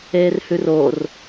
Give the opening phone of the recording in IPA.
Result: eː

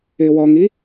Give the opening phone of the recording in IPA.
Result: ɪː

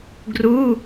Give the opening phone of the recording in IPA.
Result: ɡ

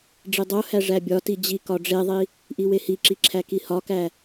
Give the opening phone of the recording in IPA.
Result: ɖ͡ʐ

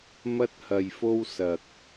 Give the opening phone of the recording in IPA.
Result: m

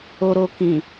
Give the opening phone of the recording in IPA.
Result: o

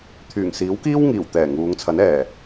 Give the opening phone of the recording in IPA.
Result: t̪ʰ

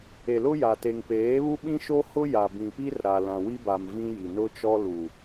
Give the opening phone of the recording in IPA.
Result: e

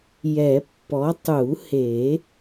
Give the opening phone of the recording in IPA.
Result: j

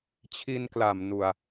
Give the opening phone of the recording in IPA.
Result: t͡ɕʰ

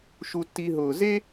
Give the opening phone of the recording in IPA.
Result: ʃ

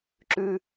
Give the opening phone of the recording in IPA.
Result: ǁ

